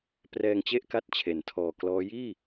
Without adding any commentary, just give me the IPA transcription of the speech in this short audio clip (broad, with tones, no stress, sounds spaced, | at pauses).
p r ɛː˧ ŋ t͡ɕ e˥˩ ʔ k a˦˥ t̚ t͡ɕʰ e˩˦ n tʰ ɔː˨˩ k l ɔː˦˥ j iː˥˩